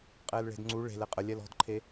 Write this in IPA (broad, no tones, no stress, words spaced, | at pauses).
qʼɛːlɭe̤dŋ͡ǀu ɭe̤l ɛqʼə lʲɛlɔ̤dǃʰe